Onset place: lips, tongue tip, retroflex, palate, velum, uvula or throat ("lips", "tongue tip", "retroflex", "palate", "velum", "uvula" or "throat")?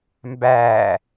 lips